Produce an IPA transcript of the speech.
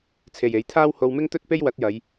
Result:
t͡sʰ e˨ j e˨˥ j t̪ʰ aː˥ w h o˧ w m ɪ˥ ŋ t̪ ɵ˥ t̚ p e˥ j w ɐ˨˥ t̚ j ɐ˨˧ j

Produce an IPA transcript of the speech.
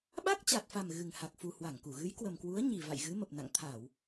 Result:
ɓ a˦˥ k̚ t͡ɕ a˨˩ t̚ f a˨˩ m ɣ ɨ˨˩ ŋ h a˨˩ k̚ f u˨˩ h w a˧˩ ŋ k u˧˩ ɣ ɨ˨˦ j k w ə˨˩ m k w u˨˦ ə̯ ɲ i˨˩ v a̰˧˨ j ɣ ɨ˨˦ m ə˨˩ p̚ n a̰˧˨ ŋ t̪ʰ a˧˩˨ w

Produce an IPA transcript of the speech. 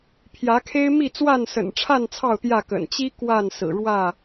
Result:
pʰ j ä˨˦ kʰ e˦ ɪ̯ m i˥˨ t͡s w a˥˨ n s ə̰˨˩ n ʈ͡ʂʰ a˥˨ n t͡sʰ ɑ˥˨ ʊ̯ t̪ j ä˥˨ k ə̰˨˩ n t͡ɕ i˦ k w a˥˨ n s ɹ̩˨˩ ɻ w ä˥˨

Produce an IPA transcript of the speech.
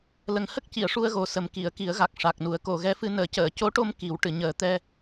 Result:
l ə˨˩ ŋ h ə˦˥ k̚ c i˨˩˨ ə̯ ʂ u˧ ə̯ ɣ o˨˩ s ə˨˩ m k i˨˩˨ ə̯ k i˨˩˦ ə̯ ɣ a˨˩ k̚ ʂ a˨˩ k̚ n u˨˩˦ ə̯ k o˨˩˨ ɣ ɛ˧˥ f ɨ˧ n əː˨˩˦ c əː˨˩˨ c o˧˥ ʈ o˧ m k i˨˩˦ w ʈ ɨ˨˩˨ ɲ əː˨˩˦ t̪ ɛ˧

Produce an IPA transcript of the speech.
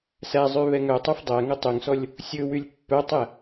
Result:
s æ zˤ ʉ β ɛ ŋ œ tˤ ʉ f dˤ æ ŋ ɵ tˤ ø ŋ s ɔ lʲ | sʲ ɵ w y lʲ pː œ tˤ ɛ

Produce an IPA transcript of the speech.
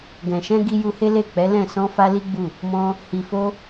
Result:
ɡ ɛ̃˨ ʃ ɛ̃˧ ɡ i˧ j u˧ h e˦ l e˦˨ k͡p ɛ˨˦ l ɛ̃˦˨ s ɔ̃˧ f a˧ l i˦ ɡ͡b u˦˨ | m ɔ̃˧ | h i˨ f o˧

